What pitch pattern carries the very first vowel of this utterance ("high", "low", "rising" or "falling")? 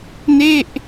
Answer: falling